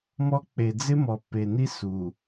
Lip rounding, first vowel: rounded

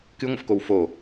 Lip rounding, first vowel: unrounded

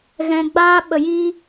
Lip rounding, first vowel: unrounded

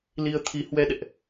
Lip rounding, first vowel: unrounded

